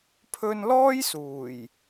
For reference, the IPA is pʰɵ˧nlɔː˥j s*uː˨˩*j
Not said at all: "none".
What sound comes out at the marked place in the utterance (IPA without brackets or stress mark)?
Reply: uː˨˩